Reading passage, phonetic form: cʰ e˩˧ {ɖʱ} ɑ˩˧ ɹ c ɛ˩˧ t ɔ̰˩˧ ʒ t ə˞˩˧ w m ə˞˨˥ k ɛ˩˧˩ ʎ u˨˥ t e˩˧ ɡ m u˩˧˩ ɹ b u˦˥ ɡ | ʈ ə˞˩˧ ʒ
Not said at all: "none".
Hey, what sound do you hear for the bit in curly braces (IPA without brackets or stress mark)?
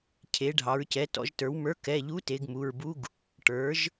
ɖʱ